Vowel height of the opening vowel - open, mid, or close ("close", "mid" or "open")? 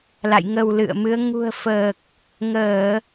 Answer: open